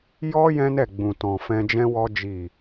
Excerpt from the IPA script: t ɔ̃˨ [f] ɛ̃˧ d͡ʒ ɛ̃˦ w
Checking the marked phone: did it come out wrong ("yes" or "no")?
no